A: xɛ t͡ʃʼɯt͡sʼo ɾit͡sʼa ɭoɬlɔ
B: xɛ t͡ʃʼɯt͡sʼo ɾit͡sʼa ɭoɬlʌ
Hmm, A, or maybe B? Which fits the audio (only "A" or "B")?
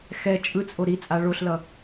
B